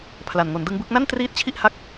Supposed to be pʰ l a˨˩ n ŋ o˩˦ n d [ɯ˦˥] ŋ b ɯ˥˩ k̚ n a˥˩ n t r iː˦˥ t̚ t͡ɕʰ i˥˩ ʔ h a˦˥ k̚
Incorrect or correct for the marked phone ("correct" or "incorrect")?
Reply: correct